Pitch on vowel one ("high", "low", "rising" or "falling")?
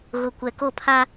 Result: low